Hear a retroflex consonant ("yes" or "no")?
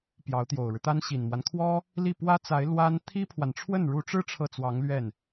yes